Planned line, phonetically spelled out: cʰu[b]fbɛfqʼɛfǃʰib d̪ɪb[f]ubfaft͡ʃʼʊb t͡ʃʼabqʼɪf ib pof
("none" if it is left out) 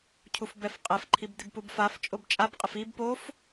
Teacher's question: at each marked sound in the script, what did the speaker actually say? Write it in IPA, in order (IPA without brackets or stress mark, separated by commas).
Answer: none, p